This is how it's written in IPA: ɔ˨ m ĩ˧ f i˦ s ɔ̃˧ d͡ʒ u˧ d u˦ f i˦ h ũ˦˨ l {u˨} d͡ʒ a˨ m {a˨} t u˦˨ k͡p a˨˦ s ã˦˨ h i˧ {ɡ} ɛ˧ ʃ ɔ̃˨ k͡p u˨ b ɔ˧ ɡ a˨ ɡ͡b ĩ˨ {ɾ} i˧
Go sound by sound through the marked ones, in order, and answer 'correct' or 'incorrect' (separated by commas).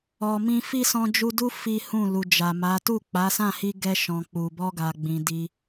correct, incorrect, correct, incorrect